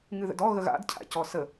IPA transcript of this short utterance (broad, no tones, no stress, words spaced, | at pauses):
ŋɨðə̰dɔ ɣəɣa̰d cʰa̰cɔsə